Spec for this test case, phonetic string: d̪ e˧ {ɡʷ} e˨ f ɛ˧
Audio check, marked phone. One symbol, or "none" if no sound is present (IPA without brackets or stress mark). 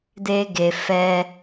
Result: ɡ